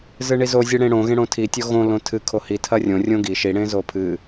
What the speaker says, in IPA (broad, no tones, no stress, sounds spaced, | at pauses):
z ɨ ɳ i z o zʲ ɨ ɽ ẽ ɽ õ ɣ ẽ ɽ õ tʰ i tʲ o ɣ õ l õ tʰ ɨ kʰ o h i tʰ ɐ rʲ õ rʲ õ ɡ i ʃ i ɽ ẽ z o pʰ ɨ